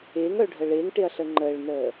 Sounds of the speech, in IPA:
ɪːŋœ ɖʱəɭɪːŋʈɪɐ̯ɬə ŋ͡ǃəːɭnəː

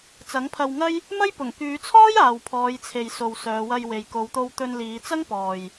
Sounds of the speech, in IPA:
t͡sɐ˨˥ŋpʰɐ˧wŋɐ˥j | mɐ˥jpʊ˨˩ŋ kyː˨˧t͡sʰɔː˥j aː˨wpʰɔː˨˧jt͡sʰe˨j so˨wsœː˨˧wɐ˧jwe˨j ko˨˧wt̪o˧wt̪ɵ˧nliː˨˧ t͡sɐ˥ŋpɔː˨j

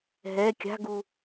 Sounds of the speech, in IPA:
ɦɛ kʲa̤ɡu

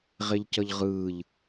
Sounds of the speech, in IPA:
ʁeʎcʌʎʁɯːʎ

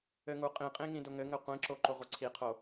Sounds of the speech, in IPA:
ɘŋuqʼĩqʼĩ ŋĩdʊŋɘŋɘ qʷĩǁo ǃʊʁʷɘǀʰiqʰo

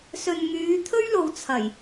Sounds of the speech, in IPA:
sɵ˨nŋyː˨˧t̪ʰɵ˥ɥlo˨w t͡sʰɐ˨˩j

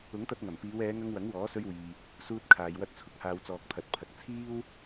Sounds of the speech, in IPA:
ʊ˨˥ŋt̪ɐ˧t̚ŋɐ˨˩m piː˨˧wɛː˨˧ŋɐ˧ŋ wɐ˨˥ŋwɔː˨˥sɵ˧ɥwiː˨ | suː˧t̚ kʰaː˨jwɐ˧t̚ t͡sʰʊ˧k̚haː˨wt͡sɔː˨k̚t̪ʰɐ˨t̚ pʰɐ˨k̚t͡sʰiː˥w

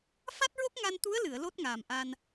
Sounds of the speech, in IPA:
fa˦˥t̚ɹo˦˥k̚ŋa˧n t̪u˧˥ə̯lɨ˨˩˨ə̯ lo˦˥t̚ŋaː˨˩mʔa˧n

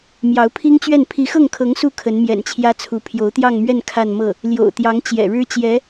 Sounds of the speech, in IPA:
mjɑ˧˥ʊ̯pʰi˥ŋt͡ɕɥɛ˥˩n pʰi˧˥xɤ˥˩ŋkʰɤ˧˥ŋ su˥˩ kʰə˧˥nmjɛ̰˨˩nt͡ɕʰjä˥t͡sʰu˧˥ pʰjo˧˥ʊ̯t̪jɑ˥˧ŋmɥɛ˥˧n kʰa˥˧nmɤ˥˩ | ljo̰˨˩ʊ̯t̪jɑ˧˥ŋ t͡ɕjɛ̰˨˩ɻɻ̩˥ t͡ɕjɛ˧˥

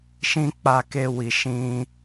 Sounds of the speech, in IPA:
ʃĩ˦ k͡pa˧ke˧wi˨ ʃĩ˧

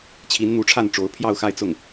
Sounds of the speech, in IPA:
t͡ɕʰi˧˥nn̪u˧˥ʈ͡ʂʰa˥˩nʈ͡ʂo˧˥ʊ̯ pʰjɑ˥˧ʊ̯xa˥˧ɪ̯t͡sʊ˥˩ŋ

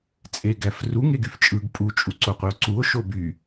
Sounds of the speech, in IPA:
t͡sʼeɡæfru ŋeɡyft͡ʃʼɯɡ pʼu t͡ʃʼuǀoqʷio̯ǀuo̯ ʃoby

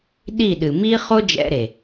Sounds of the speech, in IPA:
ɗi˦˨ɗɨ˨ mi˦χo˦d͡ʒɛ̰˧ɾe˨

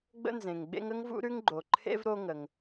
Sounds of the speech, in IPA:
ɡ͡bə̰˥nzẽ˩ŋɡ͡bḛ˥ŋ ə˥ŋvṵ˥ɾʉ˥ŋɡ͡ǃo˩ ǃʰḛ˥v ɾo˥ŋə˩ŋ

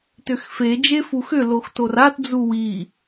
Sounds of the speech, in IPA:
tʏxfe d͡ʒefuxʏ loxtorat d͡zuwi

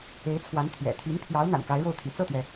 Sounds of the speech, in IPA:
e˧˥ɪ̯t͡sʰwa˧˥n t̪ʰɥɛ̰˨˩ t̪ʰy˧˥npʰjɑ˧˥ʊ̯ n̪a̰˨˩nka˧˥ɪ̯ɻo˥˩ʊ̯t̪ʰy̰˨˩ t͡sɤ˥˩t̪ɥɛ˩

